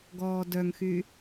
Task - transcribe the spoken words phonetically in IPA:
ɡ ɔː d œ ŋ x y

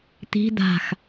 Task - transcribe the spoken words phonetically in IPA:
t̪ i̤ d̪ a̤ x

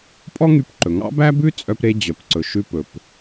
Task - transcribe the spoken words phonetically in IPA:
pʼ ɔ˥ ŋ y˧ p ǃ ɵ˩ ŋ ɑ̰˥ b æ˥ b ʉ˥ t͡sʼ œ˧ p ɾ e˧ d͡ʑ œ˩ p ǀ ɵ˩ ʃ ʉ˧ p ɵ˩ p

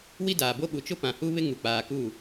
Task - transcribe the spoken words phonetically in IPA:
w i˦ d aː˨ b o˦ ɓ u˨ t͡ʃ ʊ˦ p ã˨ h u˦ β ɪ˦ ŋ u˨ k͡p aː˨ k u˦˨

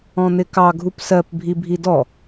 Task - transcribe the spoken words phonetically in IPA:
ɔ̃ n̪ ɪ k ɑ ɡʱ u p s ɜ p bʱ i bʱ i d ɔ

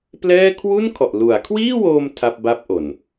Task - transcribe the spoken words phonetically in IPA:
p l ɛː˥˩ kʰ w u˥˩ n kʰ ɔ˨˩ ʔ l u˩˦ a̯ kʰ w iː˥˩ w oː˧ m tʰ a˥˩ p̚ b a˥˩ p̚ ʔ o˨˩ n

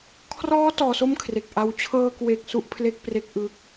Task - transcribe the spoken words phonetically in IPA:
kʰ r ɔː˦˥ t ɔː˧ s o˥˩ m kʰ r e˨˩ k̚ ʔ a˧ w t͡ɕʰ ɤː˧ k w e˨˩ k̚ s u˥˩ ʔ pʰ l e˥˩ k̚ p r e˦˥ k̚ ʔ ɯ˥˩ k̚

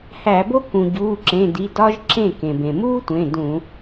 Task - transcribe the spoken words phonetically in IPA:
h æ˧˩˧ b o˥ k ũ˩ ɟ uː˩˧˩ ǁ ẽ˩˧˩ d i˩˧˩ d ɒ˥ ʒ ǁ ẽ˥˩ k ẽ˩ b ẽ˩ m uː˥ tʷ ẽ˩˧˩ d ũ˧˩˧

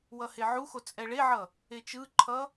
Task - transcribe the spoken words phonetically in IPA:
w ʌ h e ʕ u x o t͡sʼ ɛ ɭ e ʕ ʌ | e t͡ʃ ɯ ǃʰ ʌ

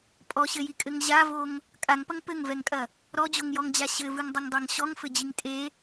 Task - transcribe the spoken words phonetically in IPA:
pʼ ɔ ɕ ɘ j i kʼ ɘ ŋ ʑ a v o ŋ | kʼ a ŋ p ɐ ŋ p ɘ ŋ v ɛ ŋ kʼ ɐ | ɾ ɔ d͡ʑ o ŋ j ɔ ŋ d͡ʑ a ɕ ɘ v ɨ ŋ dˤ ɘ ŋ dˤ a ŋ ɕ ɔ ŋ f ɘ d͡ʑ i ŋ tʼ e

